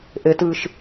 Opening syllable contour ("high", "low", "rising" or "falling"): low